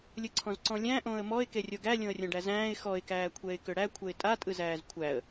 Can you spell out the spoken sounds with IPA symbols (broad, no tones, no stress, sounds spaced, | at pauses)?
lʲ ɯ ǀʰ ɔ̃ z ǀ ɔ̃ lʲ æ̃ ʔ õ ə̯ m ɔ ɪ̯ k e rʲ o ɡ æ lʲ õ ə̯ rʲ õ ɖ æ z æ̃ː ɪ̯ x ɔ ɪ̯ k æː kʷʰ ɛ ɪ̯ k ʏ ɽ æ kʷʰ ɛ ɪ̯ tʼ a tʼ ɯ z æː z kʷʰ æ ə̯